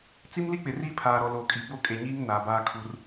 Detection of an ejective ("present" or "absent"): present